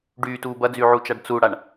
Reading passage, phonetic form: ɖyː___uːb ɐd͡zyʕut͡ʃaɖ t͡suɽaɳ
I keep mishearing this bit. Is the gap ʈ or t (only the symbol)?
t